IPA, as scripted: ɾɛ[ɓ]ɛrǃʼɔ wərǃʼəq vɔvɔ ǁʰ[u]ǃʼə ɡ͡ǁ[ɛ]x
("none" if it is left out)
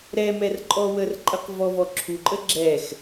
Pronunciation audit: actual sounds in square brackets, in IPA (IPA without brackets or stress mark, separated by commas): m, u, ɛ